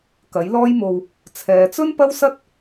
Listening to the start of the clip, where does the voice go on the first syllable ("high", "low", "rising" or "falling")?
rising